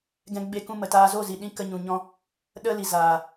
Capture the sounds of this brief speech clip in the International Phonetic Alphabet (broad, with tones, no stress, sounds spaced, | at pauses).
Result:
ɡ ɛ̃˧ ɡ͡b e˧ k ũ˧ m ə˨ t aː˧ z o˦˨ z i˨ ɗ ĩ˧ k ə˧ ɲ ũ˨ ɲ ɔ̃˧ | ɗ ə˦ l i˨ z aː˨